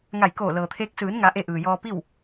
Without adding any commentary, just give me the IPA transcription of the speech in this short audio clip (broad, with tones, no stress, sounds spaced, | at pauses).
ŋ a˧˩ j k oː˧˩ l ɤː˩ t̪ʰ eː˧˥ k̚ s ɯː˩˧ n ŋ a˩˧ ʔ e˧ ʔ ɯː˩ j ɔː˧ p i˥˨ w